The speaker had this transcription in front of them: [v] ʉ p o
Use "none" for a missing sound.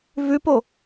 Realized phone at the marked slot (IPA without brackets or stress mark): v